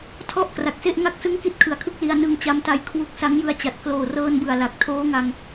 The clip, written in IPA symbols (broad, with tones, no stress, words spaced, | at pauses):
tʰɔ˥˩ʔ kra˨˩k̚se˥˩ʔŋa˥˩k̚ sɯ˥˩ŋki˥˩t̚kʰɯ˨˩a̯kʰɯ˥˩k̚ li˧a̯ nɯ˧ŋt͡ɕa˦˥mta˧j kʰwu˦˥k̚ sa˦˥ŋjɯ˧a̯t͡ɕa˨˩t̚ kloː˨˩rɤː˧nbɯ˨˩a̯ la˨˩k̚ tʰoː˦˥ŋa˧ŋ